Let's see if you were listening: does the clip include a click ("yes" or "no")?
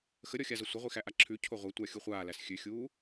yes